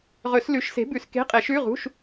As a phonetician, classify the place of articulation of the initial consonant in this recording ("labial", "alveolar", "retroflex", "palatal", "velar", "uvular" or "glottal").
uvular